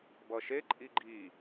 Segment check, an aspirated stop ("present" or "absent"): absent